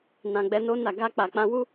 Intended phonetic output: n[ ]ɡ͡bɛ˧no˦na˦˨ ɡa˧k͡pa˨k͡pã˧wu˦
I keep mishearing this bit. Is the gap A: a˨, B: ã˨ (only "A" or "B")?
B